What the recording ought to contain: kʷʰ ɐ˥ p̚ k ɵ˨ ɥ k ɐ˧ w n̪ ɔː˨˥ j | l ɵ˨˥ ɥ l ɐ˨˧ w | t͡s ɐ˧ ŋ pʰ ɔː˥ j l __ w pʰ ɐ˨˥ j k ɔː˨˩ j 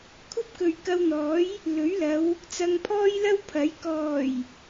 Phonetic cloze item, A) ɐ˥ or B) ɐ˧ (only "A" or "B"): A